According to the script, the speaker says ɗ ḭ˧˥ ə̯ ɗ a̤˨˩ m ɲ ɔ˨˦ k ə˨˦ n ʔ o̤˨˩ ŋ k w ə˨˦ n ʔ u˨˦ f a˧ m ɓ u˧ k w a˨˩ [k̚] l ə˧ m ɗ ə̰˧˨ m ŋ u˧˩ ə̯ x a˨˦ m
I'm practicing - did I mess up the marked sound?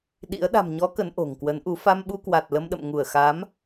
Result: yes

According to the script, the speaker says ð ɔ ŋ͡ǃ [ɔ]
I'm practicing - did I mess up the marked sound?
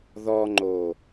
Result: yes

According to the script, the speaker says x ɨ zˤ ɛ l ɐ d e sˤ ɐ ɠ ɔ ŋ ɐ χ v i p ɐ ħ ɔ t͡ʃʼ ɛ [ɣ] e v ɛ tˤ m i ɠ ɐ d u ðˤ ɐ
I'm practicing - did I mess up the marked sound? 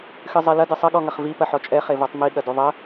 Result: yes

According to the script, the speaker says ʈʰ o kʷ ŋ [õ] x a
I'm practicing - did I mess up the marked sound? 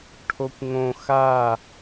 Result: no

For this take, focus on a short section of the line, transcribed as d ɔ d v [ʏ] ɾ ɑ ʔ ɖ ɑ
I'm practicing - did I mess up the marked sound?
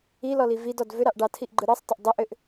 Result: no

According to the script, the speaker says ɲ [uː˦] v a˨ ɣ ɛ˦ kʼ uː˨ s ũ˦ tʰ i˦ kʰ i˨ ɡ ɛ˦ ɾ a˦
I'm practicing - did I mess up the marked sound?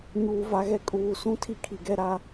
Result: yes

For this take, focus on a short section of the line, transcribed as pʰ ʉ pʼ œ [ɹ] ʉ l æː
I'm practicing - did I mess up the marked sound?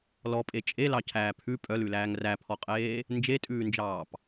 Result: yes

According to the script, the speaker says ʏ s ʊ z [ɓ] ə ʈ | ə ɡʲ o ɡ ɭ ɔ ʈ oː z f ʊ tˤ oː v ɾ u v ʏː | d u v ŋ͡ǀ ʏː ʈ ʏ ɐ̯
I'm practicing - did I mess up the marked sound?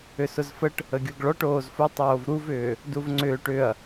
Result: yes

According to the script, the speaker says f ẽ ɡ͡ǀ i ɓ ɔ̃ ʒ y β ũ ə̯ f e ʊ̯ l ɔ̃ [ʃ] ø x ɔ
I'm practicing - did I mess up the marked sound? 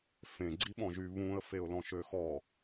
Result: no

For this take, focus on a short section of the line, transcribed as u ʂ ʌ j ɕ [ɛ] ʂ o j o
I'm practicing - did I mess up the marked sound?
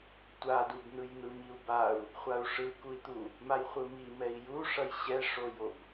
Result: no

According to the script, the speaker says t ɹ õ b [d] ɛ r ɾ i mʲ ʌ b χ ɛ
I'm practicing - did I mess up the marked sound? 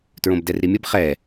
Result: no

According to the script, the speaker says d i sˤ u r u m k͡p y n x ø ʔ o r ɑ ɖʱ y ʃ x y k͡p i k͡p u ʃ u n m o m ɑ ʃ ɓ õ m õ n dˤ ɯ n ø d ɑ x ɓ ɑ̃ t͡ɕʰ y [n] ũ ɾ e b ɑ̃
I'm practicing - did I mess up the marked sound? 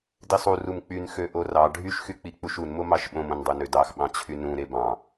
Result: no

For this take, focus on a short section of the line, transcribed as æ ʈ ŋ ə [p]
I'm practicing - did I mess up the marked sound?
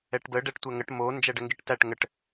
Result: yes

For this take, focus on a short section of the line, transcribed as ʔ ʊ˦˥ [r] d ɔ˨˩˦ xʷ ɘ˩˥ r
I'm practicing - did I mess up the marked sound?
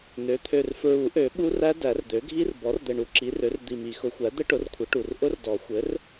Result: no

